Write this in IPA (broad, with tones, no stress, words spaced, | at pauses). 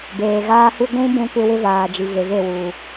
beː˨ɣaː˦hu˦ ɡʷũ˦ bũ˦kʷɪ˦wɪ˦vaː˨ d͡ʒi˨ɣe˨ve˦˨ wu˨